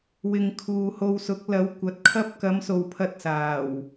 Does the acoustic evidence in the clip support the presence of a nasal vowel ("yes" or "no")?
no